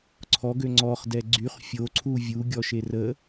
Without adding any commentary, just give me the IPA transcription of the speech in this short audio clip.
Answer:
ǀʰɔɡø ŋ͡ǀɔχdɛ ɡ͡ǀyχ fʲoǀʰu vʲuɡʲɔʃe rə

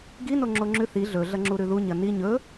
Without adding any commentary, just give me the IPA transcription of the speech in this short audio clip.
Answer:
ɡino ŋ͡ǁoŋ͡ǁʉ θi ɮɵ ɮɐŋ͡ǁuɾʉðu ɲɐni ɲɵ

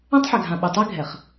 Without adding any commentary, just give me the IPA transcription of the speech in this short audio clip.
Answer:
ã˦tˤħɛ˨ɡʱã˨ ɓɨ˨tˤɛ˦ɡʱɛ˨χ

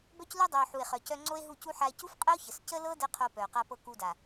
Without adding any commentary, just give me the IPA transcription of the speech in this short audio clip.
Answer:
bœ˧clu˧dˤœ˨o̯ ħu˨e̯χœ˨ cœ˧ŋ͡ǀo˦e̯ɦu˦˨cu˦ ħa˧e̯cu˦fqʼə˦o̯çə˨s cə˦lɤ˦ də˦qʰo˧pœ˨o̯ qa˧pɤ˧ ku˧da˨

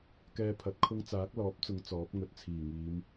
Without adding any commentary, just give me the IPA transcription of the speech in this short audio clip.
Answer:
kɛː˧ pʰɐ˨˥t̚kʰʊ˥ŋ t͡saː˨˥k̚lɔː˨˥p̚t͡sʊ˨˧ŋ t͡sɔː˨˥p̚ŋɵ˨t̚ t͡sʰiː˨˩ŋiː˨˧m

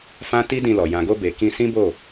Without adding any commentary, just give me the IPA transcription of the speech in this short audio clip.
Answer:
fã˦ti˦dĩ˧lɔ˨ jã˨ɡo˧be˨ kĩ˧sĩ˦bo˦˨

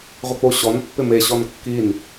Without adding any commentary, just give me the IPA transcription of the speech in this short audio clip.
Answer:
ʁʷɪk͡poɕɔn pːɪme ɕɔnkːin

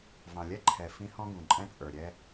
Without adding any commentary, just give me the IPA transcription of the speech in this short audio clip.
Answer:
vɑ̃˨lʲɛ˦ǃʰɛ˨ fĩ˦hɔ̃˦ɡũ˨ǃʼɛ̃˦ t͡sʼə˞˨ɾʲɛ˦

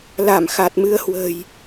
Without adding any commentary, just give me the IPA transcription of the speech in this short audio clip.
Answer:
la˧˩mxa˨˩t̚mɨ˧ə̯hwə̤˨˩j

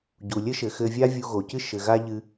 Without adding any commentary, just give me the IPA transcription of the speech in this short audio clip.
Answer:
ɟu˩lʲɘ˥ʃɘ˩ xɘ˧vʲa˥ vʲu˧ɣo˩cɨ˥ ʃɘ˩ɣa˧ ʎɨ˧

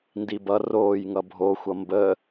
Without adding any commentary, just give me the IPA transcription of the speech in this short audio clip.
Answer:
ndibʌ roːjŋʌ bʱoxʷʌ mbə

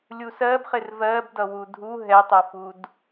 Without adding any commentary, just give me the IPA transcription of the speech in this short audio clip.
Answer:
lʲusɜbχɪr vɜbdʌ wudʱu ɦɛtˤʌfud

